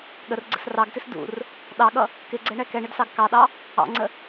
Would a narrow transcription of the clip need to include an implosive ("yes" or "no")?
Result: yes